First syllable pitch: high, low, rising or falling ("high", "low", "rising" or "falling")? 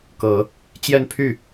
low